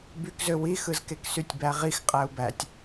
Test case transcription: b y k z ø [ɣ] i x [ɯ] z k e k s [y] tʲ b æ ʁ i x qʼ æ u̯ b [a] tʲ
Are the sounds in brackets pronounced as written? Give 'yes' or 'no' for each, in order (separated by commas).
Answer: no, yes, yes, no